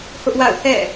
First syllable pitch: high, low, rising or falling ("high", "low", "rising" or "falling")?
high